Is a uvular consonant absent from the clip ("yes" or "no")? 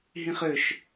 no